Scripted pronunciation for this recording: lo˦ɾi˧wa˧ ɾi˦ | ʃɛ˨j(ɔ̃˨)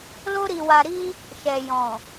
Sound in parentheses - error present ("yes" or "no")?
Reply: no